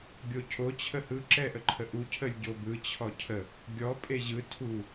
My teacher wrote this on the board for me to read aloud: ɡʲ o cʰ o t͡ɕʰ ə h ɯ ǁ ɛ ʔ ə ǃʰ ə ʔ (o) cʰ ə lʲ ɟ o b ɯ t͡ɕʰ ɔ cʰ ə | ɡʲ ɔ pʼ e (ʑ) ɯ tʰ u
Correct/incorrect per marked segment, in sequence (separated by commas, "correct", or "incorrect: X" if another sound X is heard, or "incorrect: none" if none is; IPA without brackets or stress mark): incorrect: u, correct